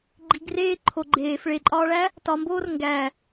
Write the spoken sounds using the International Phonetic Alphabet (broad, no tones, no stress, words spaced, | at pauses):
ɡ͡ǃiɡreː ǃʰo ɡ͡ǃeːf ɭeǃʼɒːɭæ | tɒmboːr ŋɡæ